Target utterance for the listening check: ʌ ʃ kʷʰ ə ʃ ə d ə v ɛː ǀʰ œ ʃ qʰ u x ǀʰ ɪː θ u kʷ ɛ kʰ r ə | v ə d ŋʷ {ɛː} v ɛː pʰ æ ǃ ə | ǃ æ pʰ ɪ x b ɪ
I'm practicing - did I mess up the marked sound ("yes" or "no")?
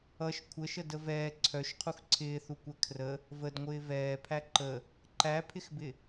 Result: yes